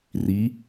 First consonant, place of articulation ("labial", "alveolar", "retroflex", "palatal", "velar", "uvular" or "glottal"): alveolar